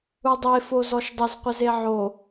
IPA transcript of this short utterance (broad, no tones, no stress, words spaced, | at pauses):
udˤe fozɔʃdˤɪz qʷɪzeʕo